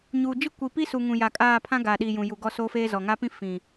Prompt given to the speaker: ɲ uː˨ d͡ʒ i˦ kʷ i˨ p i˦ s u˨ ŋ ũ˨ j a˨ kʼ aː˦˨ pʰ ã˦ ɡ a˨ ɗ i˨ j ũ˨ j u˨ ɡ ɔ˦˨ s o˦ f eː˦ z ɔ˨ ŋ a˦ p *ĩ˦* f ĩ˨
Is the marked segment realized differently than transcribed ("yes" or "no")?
no